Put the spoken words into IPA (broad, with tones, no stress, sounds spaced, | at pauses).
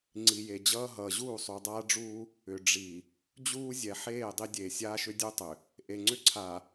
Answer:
ŋ͡ǀ i˨ j e˨ d͡ʑ ʌː˦ ɦ ʌː˨ ʑ uː˦˨ sˤ u˨ dˤ aː˦ ɖ͡ʐ uː˦ | ʏ˨ ɖ͡ʐ i˨ | d͡ʑ uː˦ zʲ ɛ˨ ħ eː˦˨ dˤ i˦ dʲ eː˨ sʲ aː˦ ʃ ʏ˦ dʲ u˦ tˤ ʏ˨ | ʔ e˨ ŋ͡ǀ ʏ˦ ǀʰ a˨